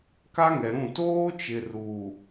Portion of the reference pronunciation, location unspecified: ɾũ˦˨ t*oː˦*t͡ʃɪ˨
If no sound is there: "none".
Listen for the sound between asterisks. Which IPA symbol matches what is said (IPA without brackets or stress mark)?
oː˦